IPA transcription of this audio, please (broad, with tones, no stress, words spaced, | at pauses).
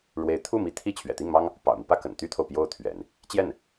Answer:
ɻwe˧˥ɪ̯t̪ʰu˥˩mi˧˥ t̪ʰi˥˩ t͡ɕʰɥɛ̰˨˩t̪i˥˩ŋmɑ˥ŋ | pɑ̰˨˩ʊ̯mi˦pä˥ kə̰˨˩nt̪y˥t̪ʰo˨ʊ̯ pjo˥ʊ̯t̪ʰɥɛ̰˨˩˦n | t͡ɕjɛ˥˩n